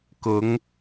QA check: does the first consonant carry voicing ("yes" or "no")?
no